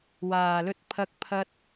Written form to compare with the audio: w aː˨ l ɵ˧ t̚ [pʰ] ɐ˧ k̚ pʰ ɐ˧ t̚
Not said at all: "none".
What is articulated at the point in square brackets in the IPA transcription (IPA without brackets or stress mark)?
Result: pʰ